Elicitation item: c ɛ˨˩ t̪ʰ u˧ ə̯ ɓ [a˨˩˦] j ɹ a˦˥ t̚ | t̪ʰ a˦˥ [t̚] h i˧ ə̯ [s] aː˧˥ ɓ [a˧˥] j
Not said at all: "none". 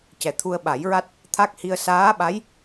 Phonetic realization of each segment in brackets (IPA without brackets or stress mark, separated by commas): a˨˩˦, k̚, s, a˧˥